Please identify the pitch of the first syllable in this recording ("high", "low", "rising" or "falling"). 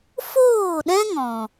falling